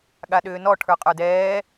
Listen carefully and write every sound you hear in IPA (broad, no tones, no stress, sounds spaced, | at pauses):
ɠ a ɗ ʏː n ɔ ʈʰ ə˞ qʼ ə˞ d ɛː